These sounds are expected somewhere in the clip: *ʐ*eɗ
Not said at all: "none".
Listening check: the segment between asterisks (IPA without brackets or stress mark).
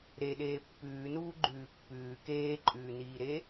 ɾ